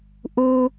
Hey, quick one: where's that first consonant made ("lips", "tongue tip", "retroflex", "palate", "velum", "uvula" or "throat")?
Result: throat